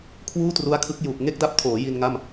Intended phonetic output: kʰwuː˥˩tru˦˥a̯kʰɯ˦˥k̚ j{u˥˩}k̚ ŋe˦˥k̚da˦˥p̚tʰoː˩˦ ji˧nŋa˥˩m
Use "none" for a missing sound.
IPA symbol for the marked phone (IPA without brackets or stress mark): u˨˩